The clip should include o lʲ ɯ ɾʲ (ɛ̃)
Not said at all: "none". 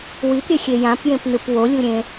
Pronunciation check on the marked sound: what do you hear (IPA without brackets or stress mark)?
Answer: ẽ